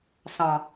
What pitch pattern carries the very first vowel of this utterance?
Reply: low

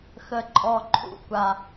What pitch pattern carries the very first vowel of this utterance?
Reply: low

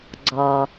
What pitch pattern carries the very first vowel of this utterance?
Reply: low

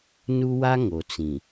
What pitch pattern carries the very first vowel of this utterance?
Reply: high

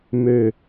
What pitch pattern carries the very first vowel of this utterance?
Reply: falling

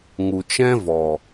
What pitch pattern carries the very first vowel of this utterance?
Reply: low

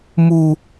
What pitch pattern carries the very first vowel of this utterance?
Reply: high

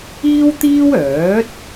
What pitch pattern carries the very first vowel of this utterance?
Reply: high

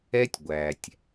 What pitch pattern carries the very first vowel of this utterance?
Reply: high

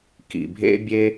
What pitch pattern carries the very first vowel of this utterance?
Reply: low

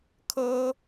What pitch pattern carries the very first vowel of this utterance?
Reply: high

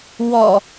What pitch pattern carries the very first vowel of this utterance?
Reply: low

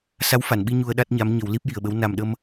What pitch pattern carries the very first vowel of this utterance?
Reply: rising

